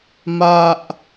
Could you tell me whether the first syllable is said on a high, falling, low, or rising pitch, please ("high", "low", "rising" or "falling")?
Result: high